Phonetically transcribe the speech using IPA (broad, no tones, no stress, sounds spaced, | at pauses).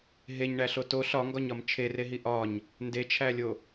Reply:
ɦ e ɲ ɳ æ ɬ o t o ɬ ɒ ŋ ɡ ɒ ɲ ɒ m t͡ʃʰ e r e ɦ i ʔ ɒ ɲ | n d e t͡ʃʰ æ lʲ o